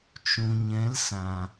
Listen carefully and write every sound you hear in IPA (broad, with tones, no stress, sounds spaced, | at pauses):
t͡ʃ ũ˨ ɲ ɛ̃˨˦ l s ã˨